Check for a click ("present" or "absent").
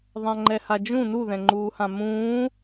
present